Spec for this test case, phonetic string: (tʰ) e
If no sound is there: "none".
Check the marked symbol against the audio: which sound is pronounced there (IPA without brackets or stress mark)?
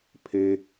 pʰ